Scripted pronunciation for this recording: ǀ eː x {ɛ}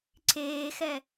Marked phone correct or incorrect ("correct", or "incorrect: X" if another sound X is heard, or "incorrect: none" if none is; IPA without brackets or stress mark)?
correct